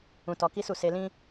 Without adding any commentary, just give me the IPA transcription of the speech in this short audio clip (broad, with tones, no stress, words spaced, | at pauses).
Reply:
ũ˧tɔ˧ki˦su˦˨ se˧lĩ˦